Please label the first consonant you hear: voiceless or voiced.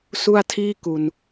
voiceless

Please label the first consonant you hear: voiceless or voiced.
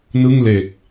voiced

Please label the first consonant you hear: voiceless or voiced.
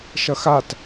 voiceless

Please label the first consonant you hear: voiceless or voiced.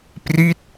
voiceless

